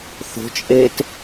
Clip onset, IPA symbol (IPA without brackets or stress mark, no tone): θ